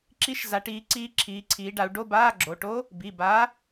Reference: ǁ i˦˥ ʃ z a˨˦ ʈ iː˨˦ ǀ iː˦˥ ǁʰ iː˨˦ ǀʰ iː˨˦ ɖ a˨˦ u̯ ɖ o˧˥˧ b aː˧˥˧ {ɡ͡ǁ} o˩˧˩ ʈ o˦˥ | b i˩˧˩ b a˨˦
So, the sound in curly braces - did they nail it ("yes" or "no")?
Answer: yes